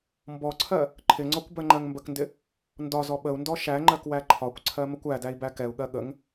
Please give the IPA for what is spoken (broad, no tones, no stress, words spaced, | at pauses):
mbɔǀʰɜ | ǃʰɪŋ͡ǀɔkʷ bɜŋ͡ǃɜŋmbəkndɪ | ndɒzɔ ɓəu̯ndɔ ʃæŋ͡ǃɜk wæǃʰɒkʷǀʰɜ məkʷædæi̯ bækɛu̯ɠɜ ɠəŋ